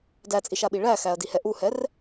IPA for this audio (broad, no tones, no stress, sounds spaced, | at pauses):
d æ t͡sʼ i ʃ a ɓ i ɭ æ x æ ɐ̯ d i h ɛ ʔ u h ɛ r